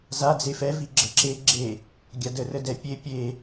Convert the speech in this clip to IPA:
z a d͡z e f ɛ v i ɡ͡ǁ ə ǁ e ɡ͡ǁ e | ɡʲ a d ə r ə d ɛ pʲ e pʲ e

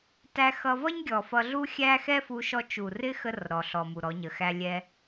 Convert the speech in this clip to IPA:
t æ˧ x ʌ˧ v ʌ˦ ɲ ɡʲ ɔ˨ f ʌ˧ ɮ u˦ xʲ æ˦ x ɛ˦ f u˧ ʃ ɔ˧ t͡ʃ u˨ r ɪ˦ x ə˧ r ɾ ɔ˨ ɬ ɔ˨ m u˨ ɾ ɔ˨˦ ɲ ə˨ x æ˦ lʲ ɛ˦

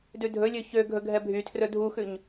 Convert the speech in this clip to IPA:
d ʉ dʱ ɵ lʲ ø ç ø ɡʱ ɵ ɡʱ ɛ bʱ y tʰ r ɵ dʱ u x ʉ ɲ

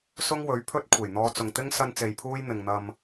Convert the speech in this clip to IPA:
s ʊ˥ ŋ w ɵ˨˥ ɥ pʰ ɵ˥ t̚ kʷʰ e˨˩ j n̪ ɔː˧ t͡s ʊ˨ ŋ t̪ ɪ˥ ŋ s ɐ˥ n t͡s e˧ j pʰ uː˥ j n̪ ɪ˨ ŋ n̪ ɐ˧ m

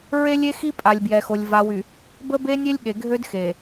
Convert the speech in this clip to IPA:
ɹ e˦ lʲ e˦ x i˦ pʼ a˨ lʲ b j ɛ˨ x o˨ lʲ v a˨ w y˨ | b ə˦ b e˦ nʲ e˦ lʲ ɠ e˨ ɡʱ ø˦ d x e˨

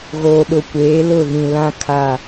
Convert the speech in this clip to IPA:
ɣ oː˨ ɗ ʊ˨ kʷ eː˨˦ l ʊ˦˨ ɣ ĩ˨ l ã˦ kʰ a˦˨

